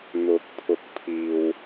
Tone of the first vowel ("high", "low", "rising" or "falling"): rising